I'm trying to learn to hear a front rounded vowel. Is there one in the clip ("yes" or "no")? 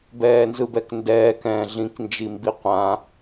no